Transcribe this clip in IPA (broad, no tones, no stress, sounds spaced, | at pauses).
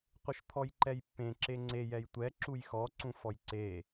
qʷ ɪ ʃ t̪ʰ ɔ j ǃ ɛ j pː ẽ ǁ e ŋ͡ǀ e j ɛ j tʷ ɛ ǁ u j x ɔ ǀ ũ f ɔ j ǀ e